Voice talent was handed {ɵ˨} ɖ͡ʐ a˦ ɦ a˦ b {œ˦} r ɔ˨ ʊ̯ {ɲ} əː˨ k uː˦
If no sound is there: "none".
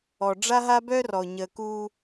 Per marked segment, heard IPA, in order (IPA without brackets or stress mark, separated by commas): ɔ˨, œ˦, ɲ